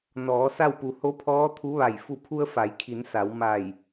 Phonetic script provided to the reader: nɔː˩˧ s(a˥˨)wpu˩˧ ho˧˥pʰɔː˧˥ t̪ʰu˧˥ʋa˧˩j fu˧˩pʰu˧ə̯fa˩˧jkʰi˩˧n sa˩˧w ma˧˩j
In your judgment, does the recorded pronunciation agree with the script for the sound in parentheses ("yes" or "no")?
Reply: yes